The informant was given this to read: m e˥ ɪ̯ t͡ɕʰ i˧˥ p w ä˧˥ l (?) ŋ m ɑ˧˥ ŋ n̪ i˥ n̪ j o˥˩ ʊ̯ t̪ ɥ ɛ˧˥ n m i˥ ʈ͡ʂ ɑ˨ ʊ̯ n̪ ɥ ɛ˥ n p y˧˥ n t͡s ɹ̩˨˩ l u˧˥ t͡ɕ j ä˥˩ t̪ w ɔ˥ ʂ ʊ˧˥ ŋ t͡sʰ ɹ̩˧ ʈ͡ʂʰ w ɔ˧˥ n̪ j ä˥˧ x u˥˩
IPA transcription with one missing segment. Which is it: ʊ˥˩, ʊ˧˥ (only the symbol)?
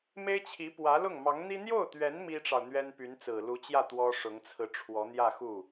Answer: ʊ˥˩